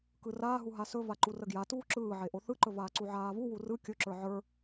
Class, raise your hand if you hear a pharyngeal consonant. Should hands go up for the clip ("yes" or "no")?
yes